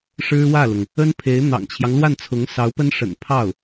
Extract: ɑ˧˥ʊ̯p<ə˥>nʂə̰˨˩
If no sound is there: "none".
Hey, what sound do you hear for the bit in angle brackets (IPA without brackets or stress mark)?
ə˥